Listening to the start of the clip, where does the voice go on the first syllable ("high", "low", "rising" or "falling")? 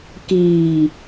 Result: low